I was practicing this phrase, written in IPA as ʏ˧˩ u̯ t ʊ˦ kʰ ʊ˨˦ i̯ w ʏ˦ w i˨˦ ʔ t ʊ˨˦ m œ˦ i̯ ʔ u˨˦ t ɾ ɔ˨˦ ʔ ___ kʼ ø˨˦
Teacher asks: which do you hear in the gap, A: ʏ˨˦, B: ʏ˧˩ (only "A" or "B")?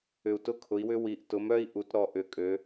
B